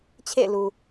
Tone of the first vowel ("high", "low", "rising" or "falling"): falling